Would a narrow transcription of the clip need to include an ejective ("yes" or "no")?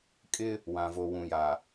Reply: yes